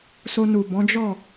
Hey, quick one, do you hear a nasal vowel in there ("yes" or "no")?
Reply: yes